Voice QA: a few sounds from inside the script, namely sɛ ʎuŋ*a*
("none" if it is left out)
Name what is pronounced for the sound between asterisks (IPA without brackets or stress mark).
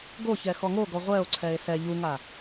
a